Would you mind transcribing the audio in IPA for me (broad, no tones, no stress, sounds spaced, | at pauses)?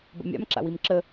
b ə̰ mʲ a̰ m ǁ a̰ w i m ǁ ə